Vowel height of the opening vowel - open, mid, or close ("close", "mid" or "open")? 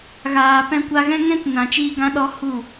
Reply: open